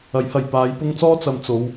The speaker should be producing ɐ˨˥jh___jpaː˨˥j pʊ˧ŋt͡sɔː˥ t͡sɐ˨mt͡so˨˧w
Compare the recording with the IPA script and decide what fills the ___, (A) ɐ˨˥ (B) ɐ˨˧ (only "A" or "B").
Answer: B